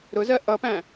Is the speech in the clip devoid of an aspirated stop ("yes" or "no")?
yes